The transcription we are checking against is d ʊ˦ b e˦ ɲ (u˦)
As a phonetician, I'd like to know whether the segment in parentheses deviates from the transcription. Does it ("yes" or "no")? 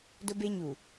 yes